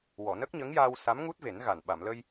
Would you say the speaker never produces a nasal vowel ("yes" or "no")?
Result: yes